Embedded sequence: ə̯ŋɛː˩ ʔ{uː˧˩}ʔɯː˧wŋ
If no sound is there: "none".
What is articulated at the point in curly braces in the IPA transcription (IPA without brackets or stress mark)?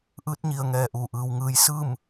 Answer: uː˧˩